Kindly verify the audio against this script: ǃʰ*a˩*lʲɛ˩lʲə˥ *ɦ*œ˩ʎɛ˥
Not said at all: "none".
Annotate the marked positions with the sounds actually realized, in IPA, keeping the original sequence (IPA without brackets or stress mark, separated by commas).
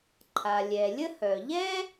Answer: a˩, h